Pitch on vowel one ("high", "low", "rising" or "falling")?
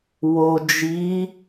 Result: low